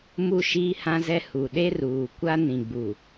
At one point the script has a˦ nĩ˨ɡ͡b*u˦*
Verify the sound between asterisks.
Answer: incorrect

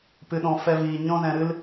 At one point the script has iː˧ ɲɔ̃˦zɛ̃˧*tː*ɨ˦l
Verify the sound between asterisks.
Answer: incorrect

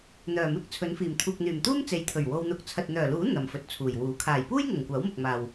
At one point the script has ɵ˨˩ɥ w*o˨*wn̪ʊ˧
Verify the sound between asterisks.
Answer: incorrect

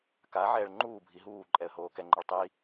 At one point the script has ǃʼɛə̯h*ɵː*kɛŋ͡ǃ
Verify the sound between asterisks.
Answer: incorrect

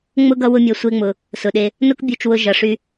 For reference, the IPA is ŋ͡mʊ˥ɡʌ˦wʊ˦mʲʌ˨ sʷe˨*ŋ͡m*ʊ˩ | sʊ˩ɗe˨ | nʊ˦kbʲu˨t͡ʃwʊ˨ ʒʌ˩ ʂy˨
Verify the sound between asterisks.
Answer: correct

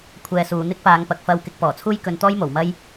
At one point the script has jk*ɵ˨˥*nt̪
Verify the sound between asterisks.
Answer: incorrect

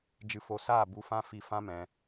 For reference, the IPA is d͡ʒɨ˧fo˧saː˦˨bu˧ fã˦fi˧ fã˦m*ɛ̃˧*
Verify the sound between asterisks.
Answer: correct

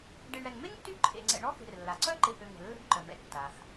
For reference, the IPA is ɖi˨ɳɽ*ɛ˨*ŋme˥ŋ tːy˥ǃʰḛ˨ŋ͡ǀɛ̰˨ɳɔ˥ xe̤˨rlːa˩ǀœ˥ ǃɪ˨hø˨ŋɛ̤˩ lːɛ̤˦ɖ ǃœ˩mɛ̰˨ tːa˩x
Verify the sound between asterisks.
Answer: correct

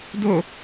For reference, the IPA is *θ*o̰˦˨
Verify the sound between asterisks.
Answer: incorrect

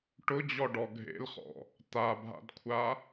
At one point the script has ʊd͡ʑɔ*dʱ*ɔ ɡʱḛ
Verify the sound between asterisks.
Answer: incorrect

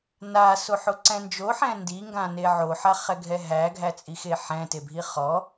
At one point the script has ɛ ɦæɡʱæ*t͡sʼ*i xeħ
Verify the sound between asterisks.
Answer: correct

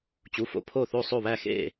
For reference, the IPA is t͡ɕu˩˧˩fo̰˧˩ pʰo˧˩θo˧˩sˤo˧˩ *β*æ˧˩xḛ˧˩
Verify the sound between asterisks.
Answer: correct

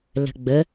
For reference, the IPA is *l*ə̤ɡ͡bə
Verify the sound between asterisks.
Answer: correct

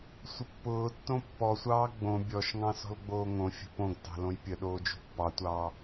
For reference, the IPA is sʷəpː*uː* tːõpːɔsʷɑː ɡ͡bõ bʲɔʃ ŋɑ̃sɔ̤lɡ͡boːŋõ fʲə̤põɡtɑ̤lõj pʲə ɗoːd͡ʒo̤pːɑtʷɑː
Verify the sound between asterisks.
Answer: incorrect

